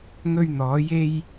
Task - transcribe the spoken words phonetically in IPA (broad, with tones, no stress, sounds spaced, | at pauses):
ŋ ɵ˧ ɥ n̪ ɔː˨˧ j e˥ j